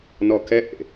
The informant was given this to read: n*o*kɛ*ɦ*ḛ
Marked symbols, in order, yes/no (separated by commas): no, no